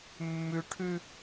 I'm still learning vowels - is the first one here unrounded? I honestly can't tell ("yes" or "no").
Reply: no